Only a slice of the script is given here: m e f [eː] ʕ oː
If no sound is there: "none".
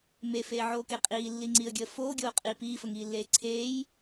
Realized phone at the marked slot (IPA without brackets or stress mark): eː